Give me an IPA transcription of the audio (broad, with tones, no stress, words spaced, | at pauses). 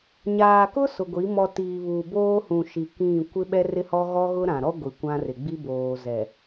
ɲaː˨kʊ˦ sʊ˨ɡʷi˨˦ mɔ˨ tiː˨βuː˨boː˦hũ˨ ʃi˨kĩ˦˨ kʷɪ˦ ɓɛ˦rɪ˦hɔ˦ ɣɔ˦ɣʊ˦ɾã˨ɾɔ˦ ɡʷi˨kʷã˦rɪ˨ ɡ͡bi˦boː˨ zɛ˨